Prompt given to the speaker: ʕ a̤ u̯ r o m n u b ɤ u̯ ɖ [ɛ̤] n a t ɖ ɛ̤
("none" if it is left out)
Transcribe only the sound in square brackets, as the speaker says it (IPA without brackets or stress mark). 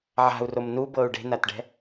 e̤